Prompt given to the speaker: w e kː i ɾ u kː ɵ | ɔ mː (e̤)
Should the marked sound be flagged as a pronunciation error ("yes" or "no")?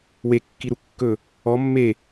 yes